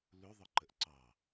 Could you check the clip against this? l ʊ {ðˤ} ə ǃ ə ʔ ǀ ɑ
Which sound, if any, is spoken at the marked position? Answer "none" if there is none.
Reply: ðˤ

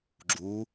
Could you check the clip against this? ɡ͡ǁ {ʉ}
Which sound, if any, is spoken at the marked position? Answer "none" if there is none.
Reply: u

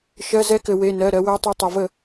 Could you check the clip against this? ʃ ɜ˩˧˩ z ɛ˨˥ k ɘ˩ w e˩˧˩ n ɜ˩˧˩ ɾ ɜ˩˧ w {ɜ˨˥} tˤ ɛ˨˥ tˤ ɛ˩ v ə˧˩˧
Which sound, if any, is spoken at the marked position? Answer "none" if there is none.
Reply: ɜ˨˥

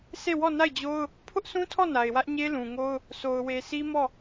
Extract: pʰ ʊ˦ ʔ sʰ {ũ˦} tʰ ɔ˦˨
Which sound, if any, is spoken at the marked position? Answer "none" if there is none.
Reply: ũ˦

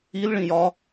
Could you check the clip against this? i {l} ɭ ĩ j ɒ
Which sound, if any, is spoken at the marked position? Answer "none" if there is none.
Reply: l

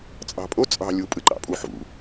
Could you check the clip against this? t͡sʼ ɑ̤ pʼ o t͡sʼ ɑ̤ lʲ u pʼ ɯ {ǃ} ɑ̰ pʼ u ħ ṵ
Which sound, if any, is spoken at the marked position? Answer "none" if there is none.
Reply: ǃ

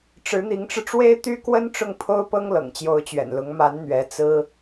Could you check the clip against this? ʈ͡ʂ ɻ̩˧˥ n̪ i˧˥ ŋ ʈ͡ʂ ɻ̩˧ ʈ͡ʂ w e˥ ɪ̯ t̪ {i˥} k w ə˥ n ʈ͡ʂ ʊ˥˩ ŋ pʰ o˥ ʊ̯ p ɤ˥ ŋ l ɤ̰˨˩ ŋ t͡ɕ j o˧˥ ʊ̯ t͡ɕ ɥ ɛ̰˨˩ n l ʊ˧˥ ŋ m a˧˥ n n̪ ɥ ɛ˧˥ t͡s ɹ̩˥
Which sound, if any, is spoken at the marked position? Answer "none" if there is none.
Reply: y˥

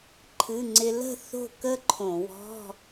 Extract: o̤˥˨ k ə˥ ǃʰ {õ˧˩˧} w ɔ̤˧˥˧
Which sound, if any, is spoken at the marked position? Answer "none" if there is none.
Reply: õ˧˩˧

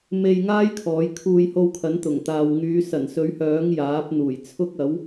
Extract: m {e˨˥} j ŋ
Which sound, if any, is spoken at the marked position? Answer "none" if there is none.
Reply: e˧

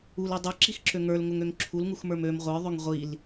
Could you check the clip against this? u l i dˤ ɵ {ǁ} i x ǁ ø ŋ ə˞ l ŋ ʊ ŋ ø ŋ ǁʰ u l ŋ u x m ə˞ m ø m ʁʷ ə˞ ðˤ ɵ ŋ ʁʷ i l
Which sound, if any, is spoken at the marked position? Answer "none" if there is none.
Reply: ǁ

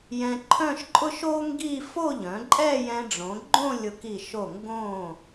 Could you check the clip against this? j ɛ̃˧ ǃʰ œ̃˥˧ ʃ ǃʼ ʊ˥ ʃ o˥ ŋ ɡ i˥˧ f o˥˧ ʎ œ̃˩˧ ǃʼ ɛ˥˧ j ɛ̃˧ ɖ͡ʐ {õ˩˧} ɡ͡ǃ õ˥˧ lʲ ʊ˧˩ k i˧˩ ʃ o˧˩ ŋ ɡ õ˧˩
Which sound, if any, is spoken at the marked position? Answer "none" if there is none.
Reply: õ˩˧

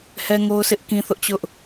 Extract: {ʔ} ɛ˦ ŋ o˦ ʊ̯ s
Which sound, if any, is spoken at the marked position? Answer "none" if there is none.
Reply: h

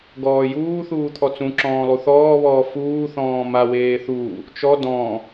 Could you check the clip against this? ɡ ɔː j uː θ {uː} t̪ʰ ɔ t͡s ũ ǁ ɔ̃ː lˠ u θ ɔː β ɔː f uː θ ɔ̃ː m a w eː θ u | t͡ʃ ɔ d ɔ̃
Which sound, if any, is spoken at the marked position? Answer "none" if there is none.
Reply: uː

